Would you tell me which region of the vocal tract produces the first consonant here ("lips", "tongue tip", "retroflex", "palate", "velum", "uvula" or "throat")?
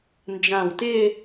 tongue tip